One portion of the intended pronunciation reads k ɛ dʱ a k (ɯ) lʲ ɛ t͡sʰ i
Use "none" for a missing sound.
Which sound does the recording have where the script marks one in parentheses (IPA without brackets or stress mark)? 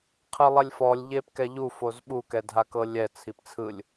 ɤ